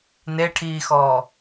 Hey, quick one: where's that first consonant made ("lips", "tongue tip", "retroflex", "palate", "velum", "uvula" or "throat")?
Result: tongue tip